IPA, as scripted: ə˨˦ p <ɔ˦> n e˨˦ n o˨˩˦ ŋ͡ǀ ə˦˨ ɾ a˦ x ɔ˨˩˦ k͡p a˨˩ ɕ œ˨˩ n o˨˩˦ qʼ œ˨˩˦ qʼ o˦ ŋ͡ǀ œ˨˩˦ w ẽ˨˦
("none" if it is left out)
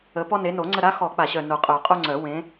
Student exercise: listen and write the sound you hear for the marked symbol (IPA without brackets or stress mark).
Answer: ɔ˦